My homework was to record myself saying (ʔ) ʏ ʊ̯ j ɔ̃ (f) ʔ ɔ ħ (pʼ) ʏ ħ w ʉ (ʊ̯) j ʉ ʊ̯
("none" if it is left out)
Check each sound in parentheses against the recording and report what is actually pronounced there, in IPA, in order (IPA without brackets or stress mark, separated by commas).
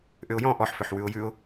ʔ, none, f, ʊ̯